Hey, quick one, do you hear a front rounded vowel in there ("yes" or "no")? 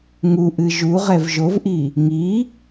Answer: no